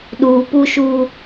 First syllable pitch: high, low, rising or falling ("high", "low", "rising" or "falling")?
low